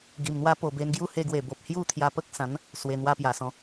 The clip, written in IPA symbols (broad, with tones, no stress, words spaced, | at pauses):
ɡi˨˩mn̪wa˦ po˨˩be˧nɡju˦ he˧ɡwe˨˩bo˨p̚ hju˥˧ t̪ʰja˧pə˦k̚sã˨˦n | swe˧n̪wa˦ pja˨˩ sɔ̃˨˦